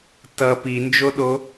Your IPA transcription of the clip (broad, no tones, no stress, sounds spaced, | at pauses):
t ʌ p i n d͡ʒ o ɗ o